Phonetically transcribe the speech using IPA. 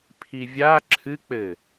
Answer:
pʰ i vʲ a ǁʰ ɨ k͡p ɘ

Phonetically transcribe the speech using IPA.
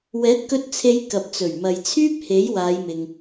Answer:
w ɛː˨˥ t̚ k ɵ˧ t̚ t͡sʰ e˨˧ j k ɐ˨ p̚ t͡s ɵ˨˩ ɥ m ɐ˨ j t͡sʰ yː˥ p̚ h e˨˥ j w aː˨˧ j m ɪ˨ ŋ

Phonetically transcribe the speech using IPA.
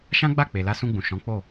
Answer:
ʃ ã˦ ɡ͡b a˦˨ k͡p e˨ l a˧ s ũ˧ ɡ͡b ũ˨ ʃ ɔ̃˨˦ k͡p o˦˨

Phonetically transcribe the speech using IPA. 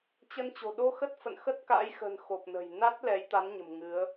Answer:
t͡ɕ ə˧ n t͡ɕ o̤˨˩ ɗ o˧ x ə˦˥ t̚ f ə̰˧˨ n x ə˦˥ t̚ k a̰˧˥ j x ə̤˨˩ n x o˨˩ p̚ n ə̤˨˩ j n a˦˥ t̚ l ɛ˨˦ j t̪ a˨˦ n ɲ ə̤˨˩ m ŋ ɨ˨˦ ə̯

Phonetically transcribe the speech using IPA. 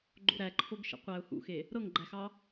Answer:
ɡ͡ǃ o̰ ɾ æ ǃʰ o ɡ ʃ ə̰ qʷ æ ʊ̯ h ṵ x e | ɾ ɤ ŋ ɡ͡ǃ æ x ɑ

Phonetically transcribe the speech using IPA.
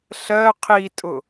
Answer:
ɬ ɜ qʰ i tʼ ʊ

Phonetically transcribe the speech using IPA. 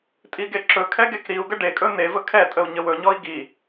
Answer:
tʼ i ɡ e ǁ ɵ kʰ ɛ ɡ e k ɾ i u̯ ɡ ə ɖ e kʼ ɵ n e v ə kʰ ɛ tʼ ə u̯ ɲ ə w ɵ ɲ ɔ i̯ ɡ i

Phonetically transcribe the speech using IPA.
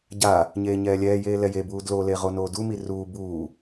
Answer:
ɟ a | ɲ eː ɲ ɛː lʲ ɛː j eː l ɛ j e b uː d l o l e ʁ o n oː d u m i r uː b uː

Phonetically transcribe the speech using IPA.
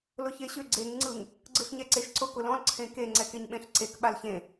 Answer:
l ʊ ç e ɕ ʏ ɡ͡ǀ e ŋ ŋ͡ǀ ɯ ŋ | ɡ͡ǀ ɯ ɬ ɲ ɛ ǀ e ʃ ǀ ʊ k ʊ l ɔ̃ l ǀʰ ẽ k e ŋ͡ǀ ɛ k e ɲ ɓ ẽ ɬ ǀ e k ɓ a l ç ẽ

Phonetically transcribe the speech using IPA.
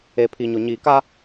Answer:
e˨ pʰ i˨ ɲ ʊ˨ ɲ iː˨ k a˦

